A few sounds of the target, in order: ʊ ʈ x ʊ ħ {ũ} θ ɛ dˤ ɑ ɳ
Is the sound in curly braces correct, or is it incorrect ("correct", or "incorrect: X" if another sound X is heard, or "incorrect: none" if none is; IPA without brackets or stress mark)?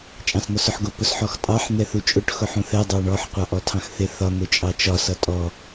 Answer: correct